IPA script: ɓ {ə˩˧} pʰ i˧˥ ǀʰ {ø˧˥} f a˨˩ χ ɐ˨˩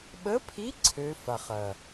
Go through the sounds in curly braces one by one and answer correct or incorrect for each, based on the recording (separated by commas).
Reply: incorrect, correct